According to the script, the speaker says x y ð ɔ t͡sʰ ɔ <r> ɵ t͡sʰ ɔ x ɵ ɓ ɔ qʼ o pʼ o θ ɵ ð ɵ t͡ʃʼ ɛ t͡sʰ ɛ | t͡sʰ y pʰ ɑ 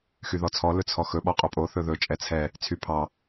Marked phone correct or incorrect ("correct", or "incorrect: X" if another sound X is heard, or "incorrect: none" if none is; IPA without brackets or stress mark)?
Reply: incorrect: l